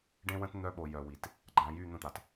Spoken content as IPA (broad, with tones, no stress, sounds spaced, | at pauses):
ɖ ẽ˦ w ə̃˦ t n̪ œ˦ ɓ o˨ j œ˨ w i˨ t | ɡ͡ǃ ã˨ j y˦˨ n̪ ə̃˦ t̪ a˨ t